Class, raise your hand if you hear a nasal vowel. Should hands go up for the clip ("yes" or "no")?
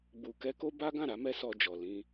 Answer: yes